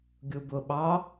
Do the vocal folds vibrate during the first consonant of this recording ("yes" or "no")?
yes